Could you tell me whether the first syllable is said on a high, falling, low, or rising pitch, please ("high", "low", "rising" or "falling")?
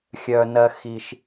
low